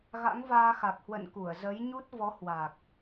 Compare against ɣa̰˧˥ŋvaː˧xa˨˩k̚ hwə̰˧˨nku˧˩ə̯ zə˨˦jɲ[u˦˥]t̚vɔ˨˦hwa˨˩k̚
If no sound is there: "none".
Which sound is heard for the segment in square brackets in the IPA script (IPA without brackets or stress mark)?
u˦˥